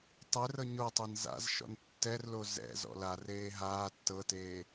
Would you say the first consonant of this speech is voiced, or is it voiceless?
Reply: voiceless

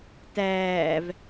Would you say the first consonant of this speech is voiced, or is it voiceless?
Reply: voiceless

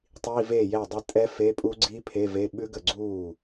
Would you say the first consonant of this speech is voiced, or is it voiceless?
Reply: voiceless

